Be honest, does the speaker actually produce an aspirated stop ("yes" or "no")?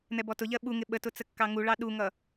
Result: no